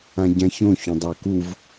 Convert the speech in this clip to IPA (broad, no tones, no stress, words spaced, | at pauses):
ãɟãçõ çũdˤakuv